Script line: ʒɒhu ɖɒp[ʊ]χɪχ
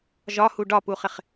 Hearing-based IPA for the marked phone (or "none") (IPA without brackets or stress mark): u